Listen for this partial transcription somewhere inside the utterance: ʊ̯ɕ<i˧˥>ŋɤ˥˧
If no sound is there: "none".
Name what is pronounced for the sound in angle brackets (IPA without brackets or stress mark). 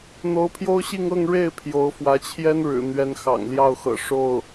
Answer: i˥˧